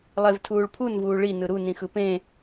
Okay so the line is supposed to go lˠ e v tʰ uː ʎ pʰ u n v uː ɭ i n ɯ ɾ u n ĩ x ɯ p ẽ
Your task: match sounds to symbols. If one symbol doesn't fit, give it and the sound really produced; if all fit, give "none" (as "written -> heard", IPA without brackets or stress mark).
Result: ʎ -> ɭ